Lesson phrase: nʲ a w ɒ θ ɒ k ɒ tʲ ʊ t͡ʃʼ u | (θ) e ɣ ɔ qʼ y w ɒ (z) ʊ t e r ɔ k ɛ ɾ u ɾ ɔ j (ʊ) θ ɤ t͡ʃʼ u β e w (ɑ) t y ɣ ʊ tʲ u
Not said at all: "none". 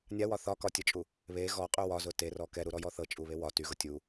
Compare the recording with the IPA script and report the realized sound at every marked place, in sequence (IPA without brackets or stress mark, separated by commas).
β, z, ɔ, ɒ